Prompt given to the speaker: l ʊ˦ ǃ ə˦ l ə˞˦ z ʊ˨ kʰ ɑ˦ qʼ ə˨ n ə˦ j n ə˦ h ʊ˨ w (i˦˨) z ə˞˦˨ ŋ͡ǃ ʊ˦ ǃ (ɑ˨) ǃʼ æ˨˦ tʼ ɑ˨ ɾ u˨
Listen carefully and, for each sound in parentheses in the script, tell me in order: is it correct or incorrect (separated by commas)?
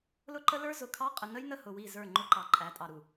correct, correct